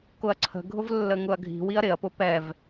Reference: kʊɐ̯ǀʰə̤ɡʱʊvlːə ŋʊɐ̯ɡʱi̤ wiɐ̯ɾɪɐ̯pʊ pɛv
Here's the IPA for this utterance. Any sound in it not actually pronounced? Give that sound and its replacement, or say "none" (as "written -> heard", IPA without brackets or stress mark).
none